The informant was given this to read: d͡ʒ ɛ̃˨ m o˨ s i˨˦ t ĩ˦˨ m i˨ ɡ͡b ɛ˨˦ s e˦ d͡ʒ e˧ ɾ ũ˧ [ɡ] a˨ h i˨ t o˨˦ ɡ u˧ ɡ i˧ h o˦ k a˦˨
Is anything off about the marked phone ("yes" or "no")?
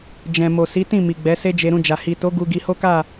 yes